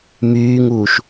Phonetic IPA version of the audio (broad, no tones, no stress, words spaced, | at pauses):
myːŋuːʃ